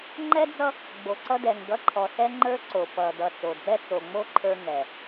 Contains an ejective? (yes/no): no